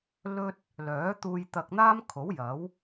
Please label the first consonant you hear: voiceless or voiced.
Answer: voiced